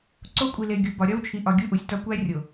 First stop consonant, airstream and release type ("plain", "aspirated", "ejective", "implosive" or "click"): click